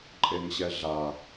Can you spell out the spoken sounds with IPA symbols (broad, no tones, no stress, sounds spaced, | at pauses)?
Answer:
ǃʼ e ŋ ɕ ɛ ɮ a